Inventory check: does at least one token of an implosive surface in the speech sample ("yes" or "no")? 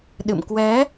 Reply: yes